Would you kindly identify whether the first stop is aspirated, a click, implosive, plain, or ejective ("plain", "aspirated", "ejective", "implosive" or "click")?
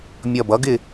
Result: plain